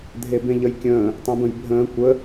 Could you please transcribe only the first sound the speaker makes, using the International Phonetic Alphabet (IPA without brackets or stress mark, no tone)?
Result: dʱ